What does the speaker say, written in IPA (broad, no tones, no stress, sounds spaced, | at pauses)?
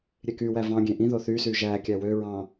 ɾʲ e k y w æ v ɑ̃ ɡʲ ẽ ʔ ĩ ð o θ y s y ʒ æ kʲ æ w ø ɹ ɑ̃